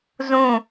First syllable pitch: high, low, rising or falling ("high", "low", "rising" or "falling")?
falling